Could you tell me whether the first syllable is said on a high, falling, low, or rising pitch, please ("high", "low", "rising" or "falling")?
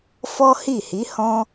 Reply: high